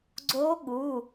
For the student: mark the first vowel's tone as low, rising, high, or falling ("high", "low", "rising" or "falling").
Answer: rising